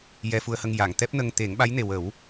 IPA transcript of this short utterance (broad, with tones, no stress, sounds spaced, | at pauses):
j ɛ˧ f u˧ ə̯ h ə˧ ŋ j a˨˩˨ ŋ t̪ ɛ˦˥ p̚ n ə˧ ŋ t̪ e˨˩˦ ŋ ɓ a˧˥ j n e˨˩ w ə˨˩˦ w